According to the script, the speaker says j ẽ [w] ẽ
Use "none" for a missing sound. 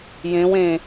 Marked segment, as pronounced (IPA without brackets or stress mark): w